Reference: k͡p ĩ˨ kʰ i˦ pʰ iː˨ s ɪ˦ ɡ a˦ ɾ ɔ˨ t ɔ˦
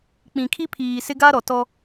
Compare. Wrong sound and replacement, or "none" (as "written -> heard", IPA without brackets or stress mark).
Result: none